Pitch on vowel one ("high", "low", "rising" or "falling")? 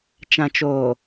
low